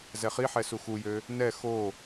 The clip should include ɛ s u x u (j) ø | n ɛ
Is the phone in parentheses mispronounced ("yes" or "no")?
no